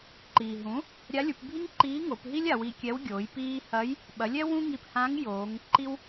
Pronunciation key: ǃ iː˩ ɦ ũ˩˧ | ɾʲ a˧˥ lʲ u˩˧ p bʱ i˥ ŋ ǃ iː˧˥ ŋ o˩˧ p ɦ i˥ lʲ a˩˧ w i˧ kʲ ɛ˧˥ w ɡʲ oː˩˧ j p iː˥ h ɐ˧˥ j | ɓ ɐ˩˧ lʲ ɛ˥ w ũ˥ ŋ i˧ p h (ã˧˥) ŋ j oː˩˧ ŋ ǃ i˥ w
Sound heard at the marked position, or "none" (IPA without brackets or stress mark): ã˧˥